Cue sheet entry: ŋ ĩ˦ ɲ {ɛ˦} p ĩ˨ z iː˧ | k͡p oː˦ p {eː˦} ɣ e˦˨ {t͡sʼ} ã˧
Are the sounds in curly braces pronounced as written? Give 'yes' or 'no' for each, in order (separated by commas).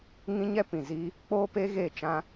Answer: yes, no, no